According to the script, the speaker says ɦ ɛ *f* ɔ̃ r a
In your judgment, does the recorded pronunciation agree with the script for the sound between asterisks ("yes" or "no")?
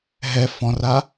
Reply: yes